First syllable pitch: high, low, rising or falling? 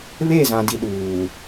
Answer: falling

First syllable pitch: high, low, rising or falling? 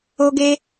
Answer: high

